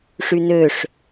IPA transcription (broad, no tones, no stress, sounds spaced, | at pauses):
ʂ y n ø ʂ